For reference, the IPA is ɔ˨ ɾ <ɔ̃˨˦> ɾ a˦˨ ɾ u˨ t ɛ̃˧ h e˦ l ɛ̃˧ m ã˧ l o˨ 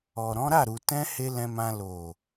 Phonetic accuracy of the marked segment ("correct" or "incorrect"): correct